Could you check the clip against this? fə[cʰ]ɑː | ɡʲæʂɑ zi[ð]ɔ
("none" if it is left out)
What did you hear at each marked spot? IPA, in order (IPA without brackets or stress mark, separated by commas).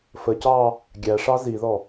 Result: c, ð